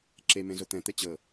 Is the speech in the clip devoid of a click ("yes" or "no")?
no